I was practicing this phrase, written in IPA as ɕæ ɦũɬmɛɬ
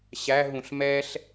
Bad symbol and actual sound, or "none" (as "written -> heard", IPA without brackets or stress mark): none